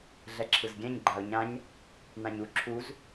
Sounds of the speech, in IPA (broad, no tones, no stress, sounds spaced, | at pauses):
ɮ ɛ ǁʰ ɯ z ɡʲ ɛ̃ ɲ ɡ͡ǃ a ʊ̯ ɲ ã ɲ | n ã ɲ u ǁʰ u z